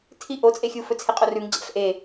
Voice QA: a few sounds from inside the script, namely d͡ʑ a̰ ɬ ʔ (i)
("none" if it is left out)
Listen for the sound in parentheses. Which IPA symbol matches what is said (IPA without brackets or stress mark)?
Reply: e